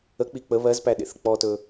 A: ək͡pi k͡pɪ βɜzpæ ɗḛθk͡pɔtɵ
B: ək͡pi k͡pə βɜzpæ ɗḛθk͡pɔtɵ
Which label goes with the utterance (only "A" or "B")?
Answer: B